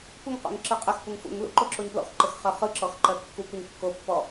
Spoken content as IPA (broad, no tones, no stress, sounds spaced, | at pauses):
kʷ ɘ ŋ q o̰ ŋ ǁ ɯ qʼ ɘ x p u ŋ f ṵ ŋ l ṵ ǃ o ǁ o ɲ p l ɔ̰ x ǃ ɘ x χ ɜ χ ɯ ǁ ɔ x ǃ ɜ kː u kʷ ɜ ɲ kː o pː ɔ